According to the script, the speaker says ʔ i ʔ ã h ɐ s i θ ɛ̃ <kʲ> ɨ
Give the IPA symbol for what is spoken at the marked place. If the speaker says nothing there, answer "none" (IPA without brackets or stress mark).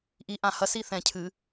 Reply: cʰ